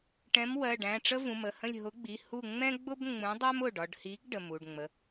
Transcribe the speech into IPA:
ʈ ɛ̃˨˥ m w ɜ˩˧˩ ɖ æ̃˩˧˩ ʈ͡ʂ ə˥ v ũ˩˧˩ m ə˩˧˩ h ə̃˥˨ lʲ ɦ ʊ˨˥ ɡ͡b i˩˧˩ h u˥˨ ŋ͡m ɛ̃˥ ɡ͡b ʊ˥ b ŋ͡m ũ˨˥ dˤ ɜ˥ m ʊ˩˧˩ ɖ ɒ˥˨ ɖ h i˨˥ ɡ ɖ ə˩˧˩ m u˩˧˩ ɖ ŋ͡m ə˩˧˩

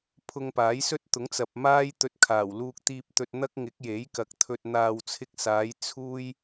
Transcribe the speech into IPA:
pʰ ʊ˧ ŋ p aː˨˥ j s ɵ˥ t̚ t̪ ʊ˨˥ ŋ t͡s ɐ˨ p̚ m aː˥ j t̪ ɵ˧ t̚ kʰ aː˨˩ w l uː˧ k̚ t̪ iː˧ p̚ t̪ ɵ˧ t̚ n̪ ɐ˥ k̚ ŋ ɪ˨˥ k̚ j e˨˥ j k ɐ˨ k̚ t̪ʰ ɵ˧ t̚ n̪ aː˨ w t͡sʰ ɪ˧ k̚ s aː˨˧ j t͡sʰ uː˥ j

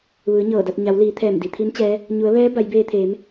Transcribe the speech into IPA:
ʋ ɯː˩˧ ɲ ɤː˧˩ d a˧ t̚ ɲ a˩˧ w l iː˩˧ t̪ʰ ɛː˧˩ m d i˩ t̪ʰ i˧˥ n t͡ɕ ɛː˧˥ | ɲ u˩˧ ə̯ ʋ ɛː˧˥ b a˩˧ j b eː˧ t̪ʰ eː˩˧ m

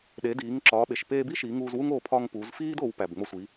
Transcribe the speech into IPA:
ɗ e˩˧ d iː˩˧ ŋ ǁ ɒː˩˧ ɓ e˩ ʃ p eː˧ b i˥ ʃ iː˩˧ ŋ uː˧ z w u˥ ŋ oː˧ pʰ ɒ˧ ŋ p uː˩˧ z f iː˥ d o˩˧ w p æ˩ b ŋ͡m o˧ sʷ i˩˧

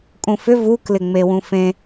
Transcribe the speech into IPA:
kʼ ũ f ʏ v u k l ɪ ŋ͡m e w ũ f ẽ

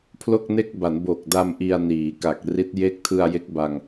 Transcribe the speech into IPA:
pʰ l o˥˩ k̚ n e˥˩ k̚ b a˩˦ n b o˨˩ k̚ d a˧ m ʔ i˧ a̯ n iː˩˦ k a˨˩ k̚ r i˦˥ t̚ j e˦˥ k̚ tʰ ɯ˧ a̯ j e˦˥ k̚ b a˧ ŋ

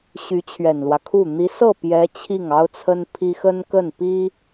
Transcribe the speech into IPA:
ɕ y˧˥ t͡ɕʰ ɥ ɛ˨˩ n l w ä˦ kʰ u˥˩ n̪ i˧˥ s ɤ˥˩ p j ɛ˧˥ t͡ɕʰ i˥˩ ŋ ɑ˥ ʊ̯ t͡sʰ ə˥ n pʰ i˥ x ə˥ n k ə˥˩ n p i˥

